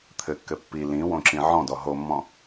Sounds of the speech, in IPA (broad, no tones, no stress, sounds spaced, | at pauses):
t̪ʰ ɘ kː ɘ pː i l ĩ w õ ǁ ĩ ʕ ɔ̃ d ɔ ɦ o mː ɔ̃